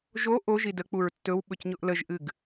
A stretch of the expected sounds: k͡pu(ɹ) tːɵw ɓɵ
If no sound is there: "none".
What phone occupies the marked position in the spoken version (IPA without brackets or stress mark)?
ɹ